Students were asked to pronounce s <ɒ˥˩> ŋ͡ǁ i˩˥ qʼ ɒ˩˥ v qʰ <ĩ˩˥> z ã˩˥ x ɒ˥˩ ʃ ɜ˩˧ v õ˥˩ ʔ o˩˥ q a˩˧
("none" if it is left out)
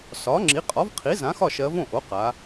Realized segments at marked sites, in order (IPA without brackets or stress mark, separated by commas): ɒ˩˥, i˩˥